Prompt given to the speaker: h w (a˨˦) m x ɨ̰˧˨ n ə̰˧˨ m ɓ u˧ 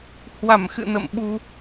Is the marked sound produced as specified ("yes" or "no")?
no